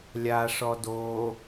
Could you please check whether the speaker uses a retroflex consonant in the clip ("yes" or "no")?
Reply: yes